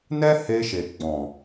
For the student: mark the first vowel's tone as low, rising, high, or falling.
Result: high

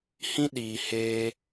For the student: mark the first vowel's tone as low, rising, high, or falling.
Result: high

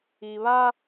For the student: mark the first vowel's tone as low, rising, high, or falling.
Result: low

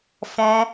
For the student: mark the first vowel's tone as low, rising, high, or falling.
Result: high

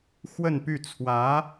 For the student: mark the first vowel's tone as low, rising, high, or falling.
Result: falling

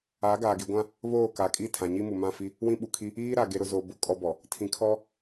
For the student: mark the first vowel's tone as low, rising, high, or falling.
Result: rising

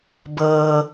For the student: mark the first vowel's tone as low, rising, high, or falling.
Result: low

